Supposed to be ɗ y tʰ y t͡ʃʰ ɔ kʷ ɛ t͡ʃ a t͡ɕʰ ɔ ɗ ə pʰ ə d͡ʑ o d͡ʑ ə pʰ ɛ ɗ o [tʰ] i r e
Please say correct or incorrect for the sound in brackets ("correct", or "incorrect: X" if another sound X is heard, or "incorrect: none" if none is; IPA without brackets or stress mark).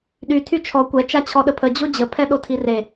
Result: correct